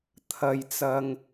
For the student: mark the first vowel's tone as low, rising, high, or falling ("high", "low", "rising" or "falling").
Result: low